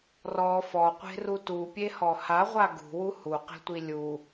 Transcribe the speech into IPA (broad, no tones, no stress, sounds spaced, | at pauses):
r ɔ f ɔ qʷ e̤ r u t u pʲ e h ɔ h a ʁʷ a ɡ ṳ w u h u q e̤ tʷ i lʲ u